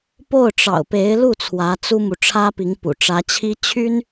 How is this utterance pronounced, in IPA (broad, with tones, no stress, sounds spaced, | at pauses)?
p o˥˩ ʊ̯ ʈ͡ʂ ɑ̰˨˩ ʊ̯ p e˧˥ ɪ̯ l u˥˩ t͡sʰ w ä˧˥ t͡s u˥ m u˨ ʈ͡ʂʰ ä˥ p i˧˥ ŋ p ṵ˨˩ ʈ͡ʂ ä˧˥ t͡ɕʰ i˥ t͡ɕʰ y˥ n